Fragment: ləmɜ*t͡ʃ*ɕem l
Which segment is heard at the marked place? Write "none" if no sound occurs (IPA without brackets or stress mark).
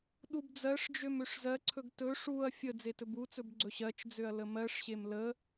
ʂ